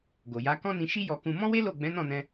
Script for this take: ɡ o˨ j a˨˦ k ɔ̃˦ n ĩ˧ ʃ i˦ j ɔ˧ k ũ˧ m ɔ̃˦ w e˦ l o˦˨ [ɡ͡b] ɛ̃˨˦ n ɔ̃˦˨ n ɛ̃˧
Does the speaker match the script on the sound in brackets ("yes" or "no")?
yes